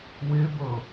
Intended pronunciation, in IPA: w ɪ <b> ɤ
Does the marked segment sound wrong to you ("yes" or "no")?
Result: no